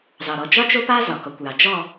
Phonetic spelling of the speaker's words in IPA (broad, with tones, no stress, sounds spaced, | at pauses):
z ɑ˨ ɾ ɔ˨ d͡ʒ ɒ˦ t͡ʃ o˦ p a˦ z ɒ˨ k ɔ˨ kʷ j ɑ˨ d͡ʒ ɔ˦˨